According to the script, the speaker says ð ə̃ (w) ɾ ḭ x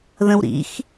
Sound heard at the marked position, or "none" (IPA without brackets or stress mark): w